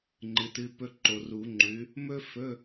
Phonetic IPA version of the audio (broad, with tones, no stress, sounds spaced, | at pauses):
ŋ͡ǃ ɨ˨˦ t ɨ˧˥˧ p ɵ˥ ǃ o˨ r u˨˩˦ ŋ͡ǃ ʉ˨˦ | m ɵ˥ f ɵ˧˥˧